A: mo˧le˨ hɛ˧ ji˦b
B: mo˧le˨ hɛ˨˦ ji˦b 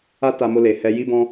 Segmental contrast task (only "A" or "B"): A